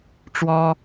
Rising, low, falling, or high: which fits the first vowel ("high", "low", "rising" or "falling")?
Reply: high